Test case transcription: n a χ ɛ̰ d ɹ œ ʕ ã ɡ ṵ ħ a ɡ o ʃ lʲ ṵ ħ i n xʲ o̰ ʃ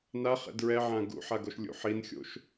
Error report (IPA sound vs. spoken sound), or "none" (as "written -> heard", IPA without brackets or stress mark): œ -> ɛ